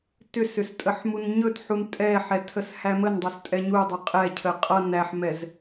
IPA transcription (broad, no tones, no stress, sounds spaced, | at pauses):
t ʏ s ʏ s tʼ ə ħ m u n ɲ ɵ t ħ u n tʼ ɛ ħ ɛ tʰ ə s h æ m ə n dˤ ʌ s tʼ ɛ ɲ u dˤ ʏ qʼ ɛ cʰ ə qʼ ʌ n æ ħ m ɛ z